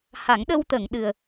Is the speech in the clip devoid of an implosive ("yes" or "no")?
no